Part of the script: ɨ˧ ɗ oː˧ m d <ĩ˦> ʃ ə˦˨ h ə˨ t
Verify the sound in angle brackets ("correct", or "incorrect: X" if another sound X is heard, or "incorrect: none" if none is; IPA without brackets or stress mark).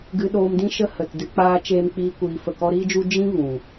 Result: correct